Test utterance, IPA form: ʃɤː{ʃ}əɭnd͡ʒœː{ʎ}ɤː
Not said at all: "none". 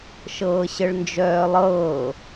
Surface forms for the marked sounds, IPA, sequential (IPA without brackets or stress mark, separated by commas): ɕ, lˠ